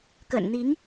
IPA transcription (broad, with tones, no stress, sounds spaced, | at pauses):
k ə̰˨˩ n n̪ i˧˥ ŋ